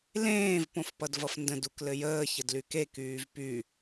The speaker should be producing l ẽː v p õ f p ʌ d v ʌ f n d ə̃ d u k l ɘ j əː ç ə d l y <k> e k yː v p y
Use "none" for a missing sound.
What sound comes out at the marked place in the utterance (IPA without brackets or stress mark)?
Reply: k